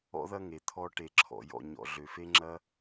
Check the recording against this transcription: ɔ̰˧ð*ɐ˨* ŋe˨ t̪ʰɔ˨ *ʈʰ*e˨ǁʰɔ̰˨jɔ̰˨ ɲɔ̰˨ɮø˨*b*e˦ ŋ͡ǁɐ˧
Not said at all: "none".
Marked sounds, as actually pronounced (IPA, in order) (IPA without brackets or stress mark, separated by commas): ɐ˧, ʈ, f